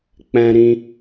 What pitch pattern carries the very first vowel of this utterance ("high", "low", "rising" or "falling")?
high